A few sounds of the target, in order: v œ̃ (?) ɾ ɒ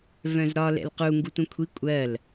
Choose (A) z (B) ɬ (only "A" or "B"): A